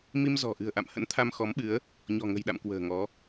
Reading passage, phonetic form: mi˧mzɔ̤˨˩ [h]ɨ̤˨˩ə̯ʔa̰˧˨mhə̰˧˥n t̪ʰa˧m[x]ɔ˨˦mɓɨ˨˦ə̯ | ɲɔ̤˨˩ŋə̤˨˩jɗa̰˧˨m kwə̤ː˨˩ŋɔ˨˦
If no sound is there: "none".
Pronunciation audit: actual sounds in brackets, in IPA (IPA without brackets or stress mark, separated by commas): ʔ, x